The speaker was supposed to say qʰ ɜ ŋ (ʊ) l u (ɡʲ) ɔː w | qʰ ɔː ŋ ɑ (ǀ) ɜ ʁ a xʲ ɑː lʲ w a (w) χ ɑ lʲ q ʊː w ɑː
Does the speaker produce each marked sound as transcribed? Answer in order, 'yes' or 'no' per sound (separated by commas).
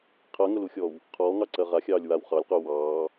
yes, no, yes, yes